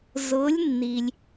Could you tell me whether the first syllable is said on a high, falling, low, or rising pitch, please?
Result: rising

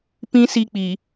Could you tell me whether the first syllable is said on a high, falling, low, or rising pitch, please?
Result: high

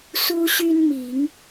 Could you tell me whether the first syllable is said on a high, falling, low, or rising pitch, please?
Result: high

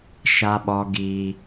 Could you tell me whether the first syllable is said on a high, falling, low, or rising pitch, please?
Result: high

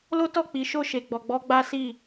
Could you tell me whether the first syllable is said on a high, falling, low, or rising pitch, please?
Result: high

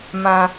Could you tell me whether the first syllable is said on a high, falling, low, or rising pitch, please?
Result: low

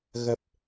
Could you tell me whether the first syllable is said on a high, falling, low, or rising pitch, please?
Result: low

